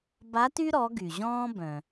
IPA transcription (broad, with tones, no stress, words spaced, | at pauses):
ba˧˥ty˥ɾɔ˩˧ ɡy˩ʑɔ̃ː˥bœ̃˩